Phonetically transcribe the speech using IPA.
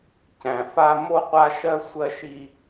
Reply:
cæ̃˨fa˦ mo˦qʷa˦ʃɜ˦ sʷɜ˦ʃi˦

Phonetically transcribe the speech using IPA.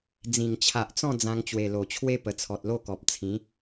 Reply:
d͡zĩ˨˩ŋt͡ɕʰa˨ʔt͡sɔ̃˥˧ d͡zã˧ŋt͡ɕwe˨˩lo˨˩t͡ɕʰwe˦ pə˨˩t͡sʰɔ˨t̚lo˥˧kɔ˨p̚ t͡sʰĩ˨˦

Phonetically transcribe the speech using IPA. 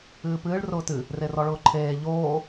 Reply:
ɨːpɨːɭ rʊːtɨ | rerɔɭʊːǃʰeː ʎoː

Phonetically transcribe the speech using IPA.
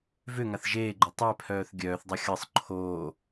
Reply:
vʏ ŋaθʒeːɡ͡ǃo tˤɛpʰœːθ ɡʲœːθdˤʌ xʲɤsˤ ǃʰoː

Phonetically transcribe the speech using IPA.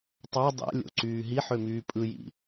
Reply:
tˤɑ dˤæ̰lʲo̰ǀyː ɦiħømyː pʼɯjḭ

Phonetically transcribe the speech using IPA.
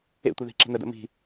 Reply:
ḛtʷe ði̤ǁe̤nədə̰ mi̤

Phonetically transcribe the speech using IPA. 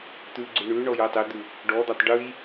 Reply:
t̪ʉɡ͡ǀʉ ɳʉɳɔjɤ tˤɪd̪ʉ | ɖɔd̪atˤ ɖʉj

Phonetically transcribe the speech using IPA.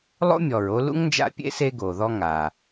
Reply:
lˠo̰˥mʲɔ˩ɹo˦ lṵ˥ŋnd͡ʒa̰˦ pʲḛ˥se˦ ɡo˩ ðɔ˦ŋa˩

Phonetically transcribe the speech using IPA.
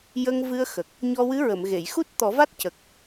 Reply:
jə˧ŋvɨ˧ə̯xə˨˩k̚ | ɲɔ˧wɨ˧˥ɹə˨˩˨m ɣe˨˩˨j xu˦˥t̚t̪ɔ˨˩˦va˦˥t̚cə˨˩k̚

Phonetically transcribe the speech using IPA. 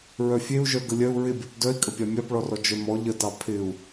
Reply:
ɹœfʲeu̯ʒœ ɡəlʲœu̯ ɹɪbʲɔp dœi̯kʼəpʲɑ mʲɑpɭɔrɔ d͡ʒœmɔ ʎətɑ pʰɪu̯

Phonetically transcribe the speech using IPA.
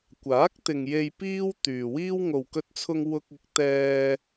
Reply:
kʷaː˨˥k̚t̪ɪ˨ŋ je˨j piː˥wt̪yː˨wiː˥w ŋo˨wkɵ˧t̚t͡sʰʊ˧ŋ wʊ˧k̚ɪ˨˥k̚ t̪ɛː˧

